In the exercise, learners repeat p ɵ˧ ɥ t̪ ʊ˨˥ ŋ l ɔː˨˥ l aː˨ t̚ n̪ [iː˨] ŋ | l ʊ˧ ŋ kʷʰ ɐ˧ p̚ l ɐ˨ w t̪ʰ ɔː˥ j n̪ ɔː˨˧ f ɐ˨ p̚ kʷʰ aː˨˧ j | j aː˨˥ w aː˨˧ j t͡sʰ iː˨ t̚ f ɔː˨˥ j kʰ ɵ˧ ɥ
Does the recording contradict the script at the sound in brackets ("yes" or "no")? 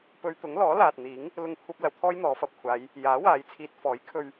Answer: yes